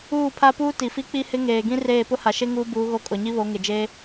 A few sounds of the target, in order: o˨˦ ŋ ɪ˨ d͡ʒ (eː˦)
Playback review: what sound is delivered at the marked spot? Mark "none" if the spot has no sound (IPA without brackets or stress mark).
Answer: eː˦